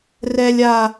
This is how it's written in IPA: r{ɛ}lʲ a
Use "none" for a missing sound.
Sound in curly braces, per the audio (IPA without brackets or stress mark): ɛ